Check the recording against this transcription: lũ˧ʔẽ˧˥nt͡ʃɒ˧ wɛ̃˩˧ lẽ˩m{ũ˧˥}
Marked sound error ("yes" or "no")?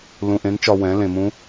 no